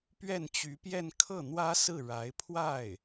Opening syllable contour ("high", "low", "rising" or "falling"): falling